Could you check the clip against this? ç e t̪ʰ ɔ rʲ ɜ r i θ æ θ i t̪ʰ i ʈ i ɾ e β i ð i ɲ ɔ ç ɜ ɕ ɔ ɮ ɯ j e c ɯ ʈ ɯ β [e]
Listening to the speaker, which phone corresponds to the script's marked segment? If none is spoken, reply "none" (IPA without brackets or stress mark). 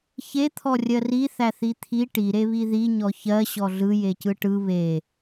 e